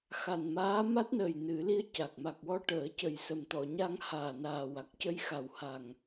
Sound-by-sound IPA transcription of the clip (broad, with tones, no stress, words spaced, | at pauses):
xa˨˩nmaː˧˥ ma˦˥t̚nəː˨˩j nɨ˨˩˦ li˧˥ə̯ ca˨˩k̚ ma˨˩k̚wɔ˧ ʈəː˨˩˦cə˨˩j sə˨˩mt̪ɔ˨˩˨ɲa˧ŋ haː˨˩naː˨˩ wa˨˩k̚cə˧jxa˨˩wha˨˩ŋ